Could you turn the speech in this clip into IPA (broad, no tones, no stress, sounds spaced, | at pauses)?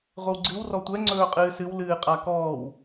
ʁʷ ɪ w ɡ͡ǀ ɨ w r ɔ tʷ ɛ ŋ͡ǀ ɵː qʼ ɨː s ɨ w l ɨː qʼ a k ɔː w